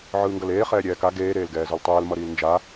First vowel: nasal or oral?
oral